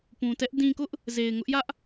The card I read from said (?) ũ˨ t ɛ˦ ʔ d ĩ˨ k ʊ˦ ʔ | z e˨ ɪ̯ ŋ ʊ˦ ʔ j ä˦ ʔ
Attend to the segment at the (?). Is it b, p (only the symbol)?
p